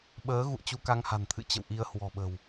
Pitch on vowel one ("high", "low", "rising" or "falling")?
rising